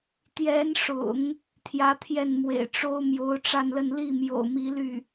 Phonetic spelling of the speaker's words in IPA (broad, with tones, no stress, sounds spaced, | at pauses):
t̪ j ɛ˧˥ n ʂ ʊ̰˨˩˦ ŋ | t̪ʰ j ä˧˥ t̪ʰ j ɛ˥˩ n m w ḛ˨˩ ɪ̯ ʈ͡ʂ o˥ ʊ̯ m j o˧˥ ʊ̯ ʈ͡ʂ a˥˧ n l ə˥˧ n l i˥˩ m j o̰˨˩ ʊ̯ m i˧˥ l y˥˩